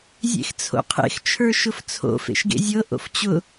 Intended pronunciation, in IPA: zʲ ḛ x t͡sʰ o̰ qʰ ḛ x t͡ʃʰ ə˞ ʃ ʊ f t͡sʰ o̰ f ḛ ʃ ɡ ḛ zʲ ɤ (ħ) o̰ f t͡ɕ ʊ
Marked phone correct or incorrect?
incorrect